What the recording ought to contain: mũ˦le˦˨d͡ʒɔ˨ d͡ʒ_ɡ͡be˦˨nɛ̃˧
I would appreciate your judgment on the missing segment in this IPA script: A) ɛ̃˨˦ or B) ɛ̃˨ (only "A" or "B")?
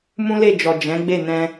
A